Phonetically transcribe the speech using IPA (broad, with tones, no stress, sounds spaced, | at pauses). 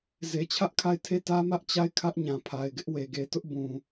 z e˨ t͡ɕʰ ä˦ ʔ kʰ a˦˨ ɪ̯ tʰ e˦˨ t ä˦ m ä˦ ʔ t͡ɕ a˦˨ ɪ̯ kʰ ä˦ ʔ ɲ ã˨ pʰ a˨ ɪ̯ ɡ ɪ˦ ʔ w e˨ ɡ e˨ t ʊ˦ ʔ b ũ˨